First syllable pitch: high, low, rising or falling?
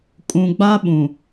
low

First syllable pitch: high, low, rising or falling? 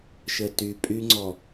low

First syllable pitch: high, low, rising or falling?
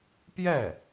falling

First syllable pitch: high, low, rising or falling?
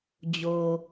low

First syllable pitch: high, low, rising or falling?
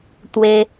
high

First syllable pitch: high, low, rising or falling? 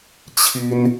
high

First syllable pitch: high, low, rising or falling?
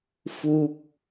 falling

